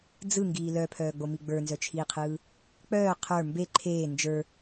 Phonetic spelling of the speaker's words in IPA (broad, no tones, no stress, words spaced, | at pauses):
d͡zɯŋɡiː lœpʰœːɡ͡bomi ɡ͡bə˞nzœt͡ʃʰiːqʰɯː | k͡pœː qʰə˞ mbe ǃʰeː nd͡ʒə˞